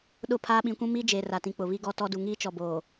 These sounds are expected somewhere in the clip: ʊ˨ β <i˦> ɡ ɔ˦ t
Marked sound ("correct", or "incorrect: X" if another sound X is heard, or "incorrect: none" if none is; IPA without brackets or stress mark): correct